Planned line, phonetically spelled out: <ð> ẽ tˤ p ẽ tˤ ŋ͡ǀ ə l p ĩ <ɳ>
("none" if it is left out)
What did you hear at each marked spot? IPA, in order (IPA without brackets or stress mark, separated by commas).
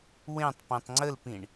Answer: w, ɳ